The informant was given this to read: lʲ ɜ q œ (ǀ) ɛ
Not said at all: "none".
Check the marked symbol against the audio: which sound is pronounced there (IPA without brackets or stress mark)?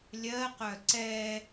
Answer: ǀ